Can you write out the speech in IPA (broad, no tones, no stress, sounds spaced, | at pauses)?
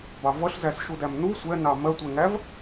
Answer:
b ɑ v ʌ ɬ z æ s ʃ u d æ m n u sʷ ɛ n ɑ m ɜ tʷ ɛ ŋ æ v